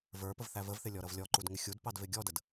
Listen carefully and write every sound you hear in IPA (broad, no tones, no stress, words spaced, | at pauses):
və˞ pəvθævəvθɪ lʲɔɾʌvlʲɔǃud ŋɪxʲudpɑd vɪɡʲɔdəd